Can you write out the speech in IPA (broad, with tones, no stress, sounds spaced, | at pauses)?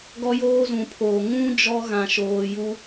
ɡ ɔ˦ j oː˦ z ũ˨ pʰ oː˨ ŋ ũ˦ d͡ʒ ɔ˦ ɣ ã˨ ʃ oː˨ j u˦